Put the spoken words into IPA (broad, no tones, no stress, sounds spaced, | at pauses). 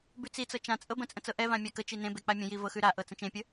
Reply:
b ʉ t͡s i t͡s ɤ t͡ʃ ã t͡sʼ ɤ b ə̃ t͡sʼ ə̃ t͡s ɤ ʔ ɛ v ã mʲ a k ə t͡ʃ i n ẽ b e k͡p a mʲ ə̃ j i v ɤ x ʉ ɾ a ʔ ɤ t͡s ə̃ t͡ʃ ẽ pʲ ə